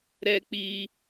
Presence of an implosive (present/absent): absent